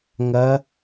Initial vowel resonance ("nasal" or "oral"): oral